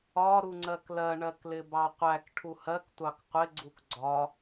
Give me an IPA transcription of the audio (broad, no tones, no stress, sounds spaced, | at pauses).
ɒ ɾ u ŋ͡ǀ ɜ k l ɜ ɳ ɜ k l ɪ b ɑ qʷ æ k ʈʰ u h ɜ k tʷ ɑ k qʷ ɪ ɡ͡ǀ u k ɡ͡ǀ ɒ